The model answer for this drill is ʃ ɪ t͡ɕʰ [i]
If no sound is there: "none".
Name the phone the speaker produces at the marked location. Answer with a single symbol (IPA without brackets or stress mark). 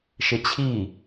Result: i